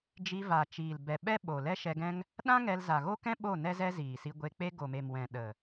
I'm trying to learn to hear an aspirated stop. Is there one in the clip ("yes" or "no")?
no